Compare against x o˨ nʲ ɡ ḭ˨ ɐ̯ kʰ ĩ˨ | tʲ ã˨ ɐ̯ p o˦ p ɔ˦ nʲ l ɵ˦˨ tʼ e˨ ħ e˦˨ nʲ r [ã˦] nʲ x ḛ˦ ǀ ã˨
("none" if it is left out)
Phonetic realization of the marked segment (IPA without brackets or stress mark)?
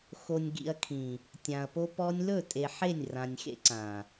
ã˨